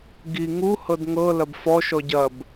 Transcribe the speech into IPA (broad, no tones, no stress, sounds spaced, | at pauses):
ɡ i ŋ u h ɤ d ŋ ɤ l ɐ b f ɔ ʃ ɔ ɟ ɐ b